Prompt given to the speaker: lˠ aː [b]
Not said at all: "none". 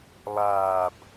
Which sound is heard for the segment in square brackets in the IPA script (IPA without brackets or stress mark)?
b